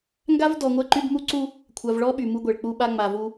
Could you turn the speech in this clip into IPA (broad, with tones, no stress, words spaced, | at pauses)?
ŋɡa˦vdɔ˨ ŋʷɛ˦ǃy˦bmu˦ ǀu˦ | kʷʰa˨v ɭɔ˦ ɓy˨mu˦ɡʷɛ˨ɭ k͡pu˦ɓa˦ŋ͡ma˨vu˦